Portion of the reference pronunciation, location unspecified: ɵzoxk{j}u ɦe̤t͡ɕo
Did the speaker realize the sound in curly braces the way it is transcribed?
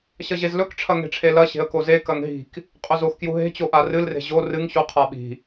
yes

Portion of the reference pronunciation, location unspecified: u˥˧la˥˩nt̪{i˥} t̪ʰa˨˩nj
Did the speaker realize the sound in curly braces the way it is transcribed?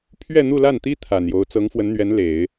yes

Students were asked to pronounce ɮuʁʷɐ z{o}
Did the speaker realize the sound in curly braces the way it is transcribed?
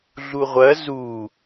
no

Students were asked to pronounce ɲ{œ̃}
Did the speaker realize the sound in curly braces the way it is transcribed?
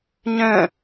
yes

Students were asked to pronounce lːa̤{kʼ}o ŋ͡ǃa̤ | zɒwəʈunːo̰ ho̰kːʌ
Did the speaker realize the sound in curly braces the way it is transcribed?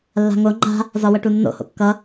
no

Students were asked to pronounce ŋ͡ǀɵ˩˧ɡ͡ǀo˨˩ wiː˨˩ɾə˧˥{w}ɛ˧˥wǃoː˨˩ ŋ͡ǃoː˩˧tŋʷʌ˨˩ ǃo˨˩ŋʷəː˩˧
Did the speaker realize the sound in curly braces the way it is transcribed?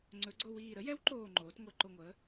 no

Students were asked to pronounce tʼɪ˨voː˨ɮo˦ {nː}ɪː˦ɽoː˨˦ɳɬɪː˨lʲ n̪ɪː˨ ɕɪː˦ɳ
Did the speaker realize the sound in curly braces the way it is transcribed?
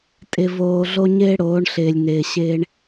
no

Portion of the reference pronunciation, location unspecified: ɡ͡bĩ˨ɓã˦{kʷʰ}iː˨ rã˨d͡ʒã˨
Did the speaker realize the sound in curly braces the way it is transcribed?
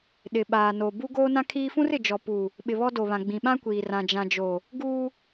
no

